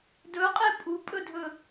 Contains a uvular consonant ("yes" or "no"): yes